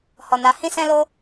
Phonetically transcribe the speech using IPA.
hɔ˨na˨˦ hĩ˦sɛ̃˦lo˦

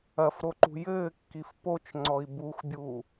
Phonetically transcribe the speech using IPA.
ɐfɾoǃṳ jɘːkːif pot͡ʃŋ͡ǀɔi̯ buxbʲuː

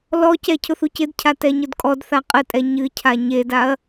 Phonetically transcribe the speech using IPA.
lɔcɛ cʰʊθucɪdcʰa tɛɲʊdkʼɔdθa qʼətʼɛ ɲɨcʰa ɲedaɐ̯

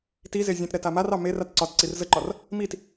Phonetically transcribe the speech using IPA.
tize zʲẽtɾɛ tamarɑ mer atǀɒtǀir zəǃɒr | mit

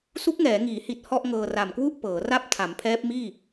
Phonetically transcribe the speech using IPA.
su˦˥k̚ŋɛː˩˦ŋiː˩˦hi˨˩t̚ hɔ˥˩ʔŋɤː˧ ra˨˩mkwu˥˩ʔ pɤː˩˦ra˥˩p̚ tʰa˩˦mpʰɛː˦˥p̚ miː˥˩

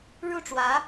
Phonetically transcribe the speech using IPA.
ɻu˥˩ʈ͡ʂwä˧˥

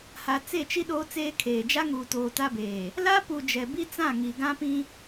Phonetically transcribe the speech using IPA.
ha˨t͡se˦˨t͡ʃi˦ ɗoː˦t͡seː˦kʰeː˨ d͡ʒa˦ŋuː˨toː˨ ta˦beː˨ | la˦pu˨ d͡ʒɛ˨bi˦t͡sã˦˨ŋi˨ ɡã˦pĩ˦

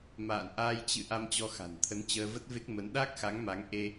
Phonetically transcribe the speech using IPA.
ma̰ː˧˨nʔaː˧j t͡ɕɨ̰˧˨ ʔa˧mt͡ɕɔ˧ xa̤˨˩nt̪ʰə˨˦nt͡ɕəː˧və˦˥t̚ ve˦˥k̚mə˨˦n ɗa˦˥k̚xa˨˦ŋma˨˦ŋʔe˧

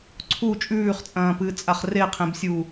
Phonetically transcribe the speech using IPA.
ǀʰu t͡ʃʼʉːχt͡sʼɐ̃ːpɨːt͡sʼaχ reqʰẽbsʲu

